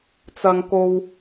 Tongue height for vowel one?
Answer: low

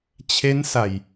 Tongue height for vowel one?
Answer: mid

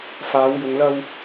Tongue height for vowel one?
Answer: low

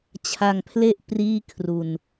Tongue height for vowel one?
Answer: low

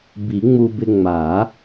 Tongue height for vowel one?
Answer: high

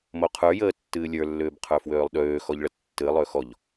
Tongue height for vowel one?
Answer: mid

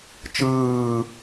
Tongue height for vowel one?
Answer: high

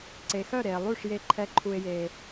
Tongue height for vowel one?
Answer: mid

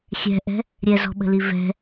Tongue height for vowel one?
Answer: mid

